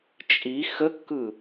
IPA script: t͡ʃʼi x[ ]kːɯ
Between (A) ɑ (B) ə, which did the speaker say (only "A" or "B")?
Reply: B